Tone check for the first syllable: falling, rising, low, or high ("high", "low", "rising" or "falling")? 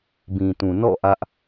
low